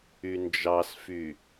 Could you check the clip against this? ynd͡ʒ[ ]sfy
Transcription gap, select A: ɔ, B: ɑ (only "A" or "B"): B